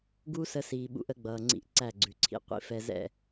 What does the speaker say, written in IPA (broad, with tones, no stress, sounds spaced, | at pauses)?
ɡ uː˦ s ə˧ s iː˨ ɓ ṵ˧ ʔ ə˨˦ ɡ͡b ʌː˨ ŋ͡ǀ ḭ˧ ʔ ǀ æ˦˨ ɡ͡ǀ ʉ˨ ǀʰ ḭ˧ qʷ ḭ˦ f ɛ˧ z ɛ̰˦˨